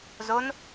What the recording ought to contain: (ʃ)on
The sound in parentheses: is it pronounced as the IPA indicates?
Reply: no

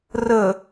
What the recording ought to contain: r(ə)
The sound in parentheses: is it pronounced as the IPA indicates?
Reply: yes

